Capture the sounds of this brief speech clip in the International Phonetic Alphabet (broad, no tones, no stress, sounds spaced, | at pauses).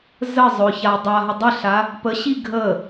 z ə zˤ ʊ ç a dˤ a ɦ ə dˤ ə ɬ a | p ə ɕ i ɡʱ ə